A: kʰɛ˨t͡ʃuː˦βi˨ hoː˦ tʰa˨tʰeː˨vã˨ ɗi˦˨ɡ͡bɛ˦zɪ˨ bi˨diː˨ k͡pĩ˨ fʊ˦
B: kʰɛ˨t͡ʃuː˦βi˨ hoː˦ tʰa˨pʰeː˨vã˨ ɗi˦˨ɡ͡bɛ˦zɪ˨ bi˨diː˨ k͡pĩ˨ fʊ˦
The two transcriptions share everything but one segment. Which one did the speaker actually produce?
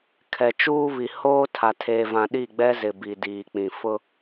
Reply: A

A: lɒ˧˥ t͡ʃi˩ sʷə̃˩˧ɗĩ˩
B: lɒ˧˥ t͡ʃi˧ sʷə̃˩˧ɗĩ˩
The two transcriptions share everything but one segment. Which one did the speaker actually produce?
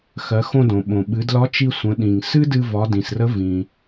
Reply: B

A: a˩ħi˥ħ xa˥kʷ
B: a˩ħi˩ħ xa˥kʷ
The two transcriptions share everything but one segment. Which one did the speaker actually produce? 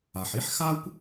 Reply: A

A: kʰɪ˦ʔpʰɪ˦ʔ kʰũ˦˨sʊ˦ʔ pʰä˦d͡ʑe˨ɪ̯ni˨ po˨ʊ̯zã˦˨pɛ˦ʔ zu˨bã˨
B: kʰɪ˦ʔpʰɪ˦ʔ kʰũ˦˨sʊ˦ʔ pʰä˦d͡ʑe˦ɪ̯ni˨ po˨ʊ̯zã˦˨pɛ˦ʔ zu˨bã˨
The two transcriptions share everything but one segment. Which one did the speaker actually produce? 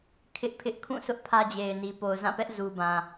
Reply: A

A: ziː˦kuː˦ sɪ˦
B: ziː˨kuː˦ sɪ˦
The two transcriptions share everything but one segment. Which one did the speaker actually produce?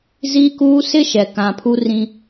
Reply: A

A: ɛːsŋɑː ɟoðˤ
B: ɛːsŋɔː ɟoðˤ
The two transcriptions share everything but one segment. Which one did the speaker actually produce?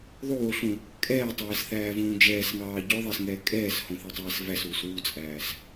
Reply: A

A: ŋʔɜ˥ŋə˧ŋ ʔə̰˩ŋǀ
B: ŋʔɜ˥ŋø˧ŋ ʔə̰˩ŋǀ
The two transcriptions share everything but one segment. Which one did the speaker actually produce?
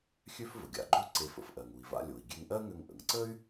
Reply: B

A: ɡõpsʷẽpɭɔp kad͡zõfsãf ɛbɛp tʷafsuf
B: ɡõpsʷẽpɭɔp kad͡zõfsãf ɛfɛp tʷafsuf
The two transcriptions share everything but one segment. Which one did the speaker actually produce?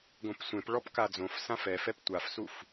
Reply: B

